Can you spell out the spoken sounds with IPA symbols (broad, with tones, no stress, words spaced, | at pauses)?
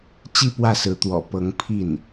t͡ɕi˥˧pwä˥˩sɹ̩˧˥ t̪wɔ̰˨˩pɤ˧˥ŋ pʰi˥˩n